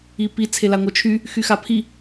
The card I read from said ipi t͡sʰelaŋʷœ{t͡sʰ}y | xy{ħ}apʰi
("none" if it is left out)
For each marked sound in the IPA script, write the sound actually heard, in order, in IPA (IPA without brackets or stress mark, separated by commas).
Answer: t͡ʃʰ, x